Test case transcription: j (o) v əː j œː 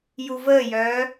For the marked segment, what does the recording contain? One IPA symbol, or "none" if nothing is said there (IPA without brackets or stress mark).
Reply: u